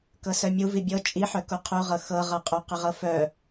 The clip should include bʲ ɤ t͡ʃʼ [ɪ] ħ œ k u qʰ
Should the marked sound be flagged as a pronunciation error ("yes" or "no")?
yes